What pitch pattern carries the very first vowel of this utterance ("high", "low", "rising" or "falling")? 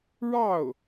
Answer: falling